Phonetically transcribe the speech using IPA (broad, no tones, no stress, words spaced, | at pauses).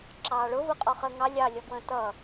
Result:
ǁɑːɭʊvʊ qʼɔχəːŋɑ lʲɑlʲɔɡwə̃ː tʌ